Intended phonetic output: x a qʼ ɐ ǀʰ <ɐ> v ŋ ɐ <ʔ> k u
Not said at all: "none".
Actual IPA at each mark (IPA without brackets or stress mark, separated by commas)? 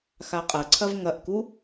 ɐ, ʔ